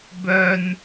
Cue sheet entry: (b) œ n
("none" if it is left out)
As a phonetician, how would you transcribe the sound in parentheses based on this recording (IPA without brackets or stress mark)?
b